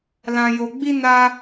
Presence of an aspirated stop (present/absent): absent